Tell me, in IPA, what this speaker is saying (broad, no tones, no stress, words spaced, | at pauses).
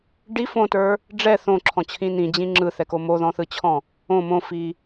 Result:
ɖi fõtə˞ | ɖ͡ʐɛ θõǁʰɔ̃t͡ɕʰĩ nĩd͡ʑĩ ŋ͡ǁɯθɛko moðɔ̃θɯt͡ɕʰɔ̃ | õ mõfi